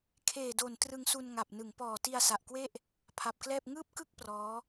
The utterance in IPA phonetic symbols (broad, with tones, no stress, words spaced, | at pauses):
kʰeː˨˩do˨˩n trɯ˧ŋsu˧n ŋa˨˩p̚ nɯ˩˦ŋpɔː˨˩ ti˧a̯sa˨˩ʔkwe˥˩ʔ | pʰa˨˩p̚klɛː˥˩p̚ ŋɯː˥˩p̚kɯ˥˩k̚ prɔː˦˥